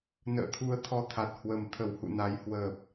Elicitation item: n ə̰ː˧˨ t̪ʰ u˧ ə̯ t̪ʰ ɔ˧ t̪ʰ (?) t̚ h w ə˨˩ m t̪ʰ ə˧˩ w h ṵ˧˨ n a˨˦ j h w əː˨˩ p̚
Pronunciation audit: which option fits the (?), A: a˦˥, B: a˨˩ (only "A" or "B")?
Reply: B